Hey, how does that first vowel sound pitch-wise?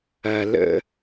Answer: low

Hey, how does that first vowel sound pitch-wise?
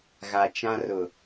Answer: low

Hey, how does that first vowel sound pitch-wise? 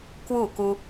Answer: falling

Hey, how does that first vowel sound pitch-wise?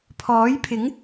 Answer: rising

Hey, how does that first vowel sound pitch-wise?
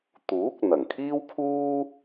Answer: rising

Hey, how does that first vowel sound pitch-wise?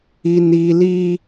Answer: high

